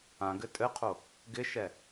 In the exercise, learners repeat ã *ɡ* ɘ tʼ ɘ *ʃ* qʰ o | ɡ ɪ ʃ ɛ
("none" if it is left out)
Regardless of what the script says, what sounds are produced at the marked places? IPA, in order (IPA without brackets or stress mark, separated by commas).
ɡ, none